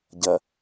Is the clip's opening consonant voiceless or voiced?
voiced